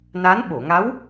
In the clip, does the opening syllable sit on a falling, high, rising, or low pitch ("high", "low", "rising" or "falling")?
rising